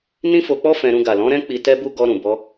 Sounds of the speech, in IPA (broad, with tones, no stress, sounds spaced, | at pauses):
n ĩ˦ f o˧ k͡p ɔ˦ f ɛ̃˧ ɾ ũ˧ ɡ a˨ l ɔ̃˨˦ ɾ ɛ̃˦ k͡p i˧ t ɛ˦ b u˦ ɡ ɔ˧ ɾ ũ˨ b ɔ˧